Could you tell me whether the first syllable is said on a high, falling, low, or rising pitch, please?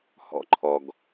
falling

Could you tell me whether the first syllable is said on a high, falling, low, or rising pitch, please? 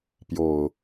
low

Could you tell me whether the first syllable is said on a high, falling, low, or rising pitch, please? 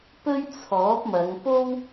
high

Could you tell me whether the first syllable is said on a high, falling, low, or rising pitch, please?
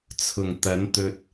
low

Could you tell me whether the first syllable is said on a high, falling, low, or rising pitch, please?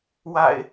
low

